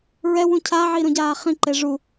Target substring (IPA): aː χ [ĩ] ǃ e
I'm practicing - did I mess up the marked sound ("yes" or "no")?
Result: no